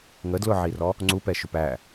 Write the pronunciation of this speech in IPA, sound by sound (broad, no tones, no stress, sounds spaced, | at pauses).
ŋ ə d l ʊ ʕ i r ɔ | ŋ͡ǀ u p ɛ ʃ ʊ p æ